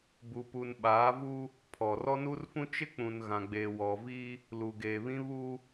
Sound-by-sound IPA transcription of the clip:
b u˨ p u˨ n ɓ aː˨˦ v u˦ | pʰ ɔ˨ r ɔ˦ n u˦ r f ũ˦ t͡ʃ ɪ˦ k͡p ũ˨ n ɣ ã˨ ɡ͡b eː˨ w ɔ˨ v i˦ | l u˨ ɡ eː˨ β ĩ˦ β u˦

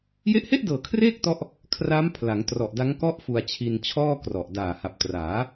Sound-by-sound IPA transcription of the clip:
j e˦˥ ʔ h e˥˩ ʔ d ɤː˨˩ kʰ r eː˥˩ k̚ t ɔ˦˥ ʔ | kʰ r a˦˥ m pʰ l a˩˦ ŋ t r ɔ˨˩ ʔ d a˦˥ ŋ k ɔ˥˩ ʔ f u˧ a̯ t͡ɕʰ i˧ n t͡ɕʰ ɔː˥˩ k r ɔ˨˩ ʔ d aː˨˩ h a˨˩ p̚ t r aː˩˦

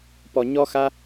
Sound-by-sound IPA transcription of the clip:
p ɔ˨ ɲ ɔ˧ x a˧

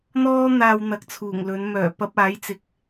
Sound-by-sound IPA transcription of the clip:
n̪ ɔː˥ n̪ aː˧ w n̪ ɐ˨˥ k̚ t͡sʰ uː˨˩ ŋ l ɵ˨˧ n m œː˨˩ p ɐ˧ p̚ aː˨˥ j t͡s ɪ˨ k̚

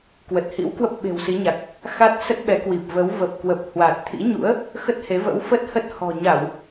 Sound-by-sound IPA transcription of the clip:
k w ə˨˩ t̚ h ḭ˧˥ w k w ə˦˥ p̚ ɓ e̤˨˩ w s i˨˦ ɲ a˨˩ k̚ | x a˦˥ t̚ s ə˦˥ t̚ ɓ ɛ˨˦ k w i˨˩ p̚ v ə˨˦ w v ə˨˩ p̚ k w ə˨˩ p̚ h w a˨˩ t̚ t̪ʰ ḭ˧˥ ɲ ṵ˧˥ ə̯ | x ə˦˥ t̚ h e˨˦ v ə̰˧˥ w f ə˦˥ t̚ h ə˦˥ t̚ h ɔ̤˨˩ ɲ a˧˩˨ w

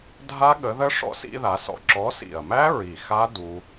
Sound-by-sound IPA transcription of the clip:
dʱ a˦˥ ɠ ə˨˦ ð ə˦˥ ʂ ɔ̰˦˥ s ḭ˦˥ ð a˨˦ s ɔ̰˦˥ ǁ ɔ˨˦ s ḭ˨˩ ɐ̯ m æ˦˥ ɹ i˨˩ x a˦˥ d u˦˥

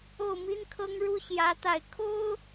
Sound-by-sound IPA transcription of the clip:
o˥˩ ʊ̯ m i˥ n kʰ ɤ˥ ŋ ɻ u˥ ɕ j ä˧˥ t̪ a˥˩ ɪ̯ kʰ o˥ ʊ̯

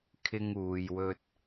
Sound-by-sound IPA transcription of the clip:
kʰ ɪ˧ ŋ uː˨ j w ɵ˧ t̚

